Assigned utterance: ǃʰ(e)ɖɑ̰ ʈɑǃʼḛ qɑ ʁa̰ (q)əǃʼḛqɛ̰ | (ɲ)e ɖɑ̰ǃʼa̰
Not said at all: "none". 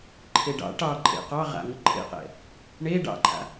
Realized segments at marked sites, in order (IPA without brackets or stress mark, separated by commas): e, ŋ, ɳ